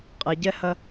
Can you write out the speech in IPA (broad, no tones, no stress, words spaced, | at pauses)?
qʼeɟɛhɐ